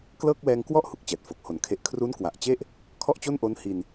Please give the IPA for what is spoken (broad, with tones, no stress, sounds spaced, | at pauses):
k l ɤː˥˩ k̚ w ɛː˧ ŋ k w ɔ˥˩ ʔ h u˨˩ k̚ t͡ɕ ɛː˨˩ t̚ f o˨˩ k̚ h o˩˦ n kʰ e˨˩ ʔ kʰ r u˦˥ n k w a˨˩ ʔ t͡ɕ e˥˩ ʔ | kʰ ɔ˥˩ ʔ t͡ɕ o˥˩ n ʔ o˦˥ n h i˧ n